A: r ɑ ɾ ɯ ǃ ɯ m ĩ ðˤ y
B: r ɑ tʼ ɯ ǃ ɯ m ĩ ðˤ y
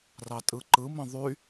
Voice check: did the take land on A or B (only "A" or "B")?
B